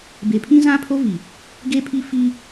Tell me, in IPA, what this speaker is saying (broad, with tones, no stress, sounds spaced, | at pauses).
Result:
b e˨ pʰ ĩ˦ z ã˦ pʰ o˦ v i˨ | ɡ e˦ pʰ i˦ f i˦